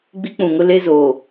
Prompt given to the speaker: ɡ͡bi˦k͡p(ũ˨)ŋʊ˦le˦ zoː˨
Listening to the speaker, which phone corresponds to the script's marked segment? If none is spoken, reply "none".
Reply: ũ˨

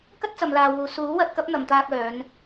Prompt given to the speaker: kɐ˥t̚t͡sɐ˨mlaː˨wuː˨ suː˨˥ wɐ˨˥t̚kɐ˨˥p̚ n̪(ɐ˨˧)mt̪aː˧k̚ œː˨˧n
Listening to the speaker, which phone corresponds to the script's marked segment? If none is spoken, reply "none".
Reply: ɐ˨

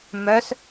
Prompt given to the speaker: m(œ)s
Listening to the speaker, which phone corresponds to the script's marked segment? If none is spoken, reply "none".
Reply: œ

